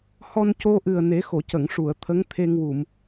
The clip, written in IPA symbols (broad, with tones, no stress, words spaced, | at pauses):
hɔ˧nco˧ʔɨ˨˩ə̯ ne˨˩˦xo˨˩˨cə˨˩˨ŋ ʂu˨˩˨ə̯t̪ʰə˧˥ŋ t̪ʰe˧ŋwu˨˩˨m